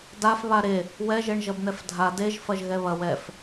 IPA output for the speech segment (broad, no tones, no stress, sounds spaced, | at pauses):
d a f β a ɾ e | w ɛ ʒ e ɳ ʒ ɐ b n̪ ɛ f dʱ a d e ʒ f ɐ ʒ ɣ ɛ β ɐ w ɛ f